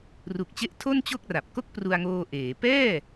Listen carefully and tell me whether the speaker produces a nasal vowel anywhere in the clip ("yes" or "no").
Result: no